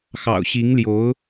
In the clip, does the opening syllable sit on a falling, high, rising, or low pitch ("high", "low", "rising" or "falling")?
low